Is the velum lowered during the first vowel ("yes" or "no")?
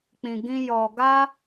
yes